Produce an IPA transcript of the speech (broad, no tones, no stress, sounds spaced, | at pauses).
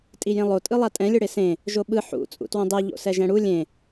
tʼ i j ẽ lˠ o tʼ ɯ lˠ a tʼ ɛ̃ lʲ ɯ ɽ e s ẽ | ʒ o ɓ ɯ ħ ṵ t͡sʼ ṵ t w õ dˤ ɛ ʎ o̰ s ɛ ʒ ɛ̃ ɽ u lʲ ẽ